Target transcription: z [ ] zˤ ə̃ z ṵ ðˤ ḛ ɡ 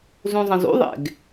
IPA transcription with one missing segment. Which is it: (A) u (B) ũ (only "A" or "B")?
B